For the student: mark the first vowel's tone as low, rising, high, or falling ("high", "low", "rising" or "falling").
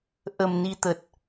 low